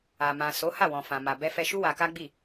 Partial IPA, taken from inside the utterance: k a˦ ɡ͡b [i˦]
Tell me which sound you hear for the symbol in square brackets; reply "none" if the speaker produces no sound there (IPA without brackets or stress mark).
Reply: i˦˨